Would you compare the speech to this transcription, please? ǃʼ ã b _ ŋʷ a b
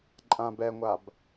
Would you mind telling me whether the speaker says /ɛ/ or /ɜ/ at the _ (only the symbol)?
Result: ɛ